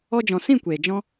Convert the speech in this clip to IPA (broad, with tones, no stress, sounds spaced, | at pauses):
ɔ˧ d͡ʒ ɔ̃˨ s ĩ˦˨ kʷ eː˨ d͡ʒ ɔ̃˦